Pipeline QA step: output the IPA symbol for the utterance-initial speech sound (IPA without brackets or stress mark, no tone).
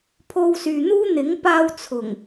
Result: pʰ